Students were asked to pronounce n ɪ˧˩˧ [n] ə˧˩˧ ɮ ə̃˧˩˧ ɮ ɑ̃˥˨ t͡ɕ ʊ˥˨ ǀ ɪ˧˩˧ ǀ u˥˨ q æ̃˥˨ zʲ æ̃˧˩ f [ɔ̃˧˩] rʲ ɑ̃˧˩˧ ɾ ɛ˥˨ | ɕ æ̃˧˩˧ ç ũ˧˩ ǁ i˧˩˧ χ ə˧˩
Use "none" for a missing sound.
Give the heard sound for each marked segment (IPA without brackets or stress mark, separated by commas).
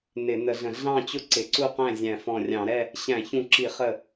n, ɔ̃˧˩